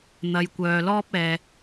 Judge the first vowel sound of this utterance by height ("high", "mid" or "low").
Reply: low